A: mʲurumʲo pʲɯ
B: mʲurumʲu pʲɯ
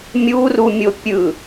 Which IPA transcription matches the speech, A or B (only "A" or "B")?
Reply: A